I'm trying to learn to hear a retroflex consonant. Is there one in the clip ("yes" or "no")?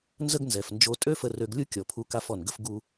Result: no